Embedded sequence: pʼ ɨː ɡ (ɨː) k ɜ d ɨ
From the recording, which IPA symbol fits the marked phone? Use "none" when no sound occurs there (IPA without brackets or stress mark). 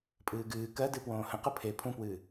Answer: ɨː